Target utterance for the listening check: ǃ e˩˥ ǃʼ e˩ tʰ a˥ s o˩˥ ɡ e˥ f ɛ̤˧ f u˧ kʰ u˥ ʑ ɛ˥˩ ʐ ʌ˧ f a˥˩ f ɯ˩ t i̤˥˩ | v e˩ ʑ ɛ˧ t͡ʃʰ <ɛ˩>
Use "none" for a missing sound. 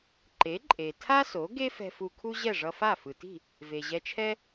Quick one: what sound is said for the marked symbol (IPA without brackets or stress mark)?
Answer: ɛ˥